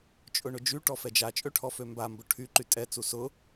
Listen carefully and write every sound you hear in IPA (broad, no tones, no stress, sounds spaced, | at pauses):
t͡ʃʼ ʊ ɳ ʊ d͡ʒ y ʈ ɔ f ɛ d͡ʒ a t͡ʃʼ ø ʈʰ ɔ f ø m b a m b ʊ ʈʰ y ǃ y tʼ ɛ t͡s u s ʊ